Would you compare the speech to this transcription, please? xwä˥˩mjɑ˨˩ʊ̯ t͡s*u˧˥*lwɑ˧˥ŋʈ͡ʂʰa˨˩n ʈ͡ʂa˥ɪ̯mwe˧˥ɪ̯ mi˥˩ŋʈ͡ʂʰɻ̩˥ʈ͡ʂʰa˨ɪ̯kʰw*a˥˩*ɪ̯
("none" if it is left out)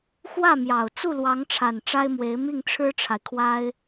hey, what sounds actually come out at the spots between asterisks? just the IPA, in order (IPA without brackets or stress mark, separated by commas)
u˥˩, a˥